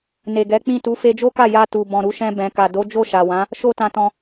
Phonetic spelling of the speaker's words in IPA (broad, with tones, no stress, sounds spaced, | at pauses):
n e˨ ɡ ɛ˨˦ k͡p ĩ˦˨ t u˨˦ f e˧ d͡ʒ o˦ k a˦˨ j a˧ t u˨ b ɔ̃˨ ɾ u˧ ʃ ɛ̃˧ b ɛ̃˨ k a˨ d o˨˦ d͡ʒ o˦˨ ʃ a˨ w ã˨˦ | ʃ o˦ t ã˧ t ɔ̃˧